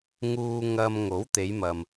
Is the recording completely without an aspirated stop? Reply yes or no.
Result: yes